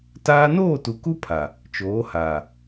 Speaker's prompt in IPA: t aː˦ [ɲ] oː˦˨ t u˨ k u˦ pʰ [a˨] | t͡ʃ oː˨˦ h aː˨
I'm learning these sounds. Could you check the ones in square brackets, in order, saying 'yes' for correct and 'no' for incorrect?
no, yes

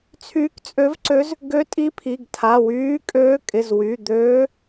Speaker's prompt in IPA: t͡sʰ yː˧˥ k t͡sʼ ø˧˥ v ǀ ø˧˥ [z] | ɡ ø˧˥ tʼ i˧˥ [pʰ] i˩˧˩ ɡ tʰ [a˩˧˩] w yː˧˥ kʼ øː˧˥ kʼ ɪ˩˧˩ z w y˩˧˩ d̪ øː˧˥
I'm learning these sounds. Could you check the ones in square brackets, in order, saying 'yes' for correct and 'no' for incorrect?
yes, yes, yes

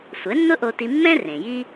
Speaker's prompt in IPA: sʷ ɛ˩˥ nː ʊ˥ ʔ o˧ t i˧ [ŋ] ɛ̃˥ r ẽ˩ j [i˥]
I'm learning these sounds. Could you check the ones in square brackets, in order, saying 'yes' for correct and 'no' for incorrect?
no, yes

